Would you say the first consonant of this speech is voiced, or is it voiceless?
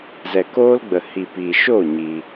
voiced